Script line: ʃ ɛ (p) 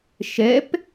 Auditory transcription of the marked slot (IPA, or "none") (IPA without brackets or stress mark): p